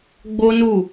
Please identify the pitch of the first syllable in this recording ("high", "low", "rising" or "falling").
high